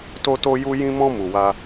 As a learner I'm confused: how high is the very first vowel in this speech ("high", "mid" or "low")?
mid